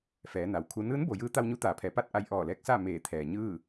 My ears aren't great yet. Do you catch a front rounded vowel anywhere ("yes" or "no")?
no